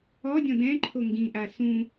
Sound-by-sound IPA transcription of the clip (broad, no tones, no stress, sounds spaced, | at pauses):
ɔ dʲ ɔ̃ d ɛ̃ ǃʰ o ŋ ɡ ĩ ʔ a s ũ